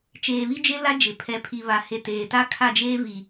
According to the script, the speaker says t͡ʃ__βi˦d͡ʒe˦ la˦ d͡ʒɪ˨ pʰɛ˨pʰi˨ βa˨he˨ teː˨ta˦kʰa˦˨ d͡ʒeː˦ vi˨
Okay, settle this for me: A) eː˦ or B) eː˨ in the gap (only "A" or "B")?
B